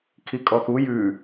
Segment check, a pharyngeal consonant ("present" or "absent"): absent